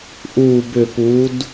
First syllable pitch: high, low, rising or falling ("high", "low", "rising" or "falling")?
low